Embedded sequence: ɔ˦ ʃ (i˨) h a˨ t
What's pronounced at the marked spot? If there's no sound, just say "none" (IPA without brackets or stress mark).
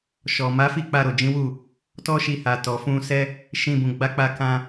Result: i˧